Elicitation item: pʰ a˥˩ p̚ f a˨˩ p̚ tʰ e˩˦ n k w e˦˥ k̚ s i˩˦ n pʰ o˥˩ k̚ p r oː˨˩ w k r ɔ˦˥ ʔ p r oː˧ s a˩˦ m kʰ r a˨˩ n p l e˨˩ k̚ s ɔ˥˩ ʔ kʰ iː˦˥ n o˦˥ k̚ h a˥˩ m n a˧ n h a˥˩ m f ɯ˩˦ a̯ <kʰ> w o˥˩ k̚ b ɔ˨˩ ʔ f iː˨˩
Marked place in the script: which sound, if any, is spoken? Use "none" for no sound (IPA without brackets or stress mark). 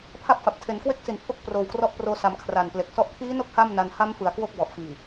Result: k